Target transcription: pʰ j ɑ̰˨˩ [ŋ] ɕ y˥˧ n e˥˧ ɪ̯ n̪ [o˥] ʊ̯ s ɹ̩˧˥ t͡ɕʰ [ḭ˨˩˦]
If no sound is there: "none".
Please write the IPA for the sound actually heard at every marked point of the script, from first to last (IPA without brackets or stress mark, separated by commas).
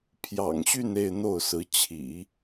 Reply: ŋ, o˥˩, ḭ˨˩˦